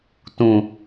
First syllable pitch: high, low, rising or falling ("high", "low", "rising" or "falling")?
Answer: low